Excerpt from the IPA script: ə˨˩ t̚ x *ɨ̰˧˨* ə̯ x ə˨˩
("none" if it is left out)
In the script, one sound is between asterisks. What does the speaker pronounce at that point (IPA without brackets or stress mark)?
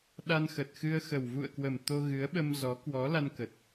ɨ˧